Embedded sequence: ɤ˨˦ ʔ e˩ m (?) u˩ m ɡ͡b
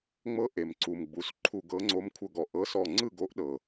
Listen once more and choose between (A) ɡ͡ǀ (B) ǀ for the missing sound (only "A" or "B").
B